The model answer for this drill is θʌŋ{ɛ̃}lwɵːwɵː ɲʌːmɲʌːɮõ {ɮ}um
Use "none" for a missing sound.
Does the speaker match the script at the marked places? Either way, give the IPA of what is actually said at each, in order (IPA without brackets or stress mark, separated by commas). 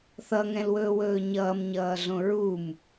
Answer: ɛ̃, ɹ